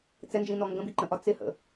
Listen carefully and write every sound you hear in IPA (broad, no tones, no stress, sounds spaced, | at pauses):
t͡s ɛ n d͡ʒ ĩ n ɔ ŋ ɡ ə̃ b i ǃ ə̃ ʔ ɒ t͡s ɪ h ə̰